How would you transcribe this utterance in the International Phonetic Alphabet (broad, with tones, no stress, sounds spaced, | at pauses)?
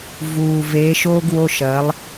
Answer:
v uː˨˩ v eː˨˥ ʃ oː˥ ɡ w o˧˥˧ ʃ ɐː˨˥ lˠ